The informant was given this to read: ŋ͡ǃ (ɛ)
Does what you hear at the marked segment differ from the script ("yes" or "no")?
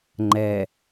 no